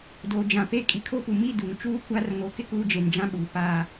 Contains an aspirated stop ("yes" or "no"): yes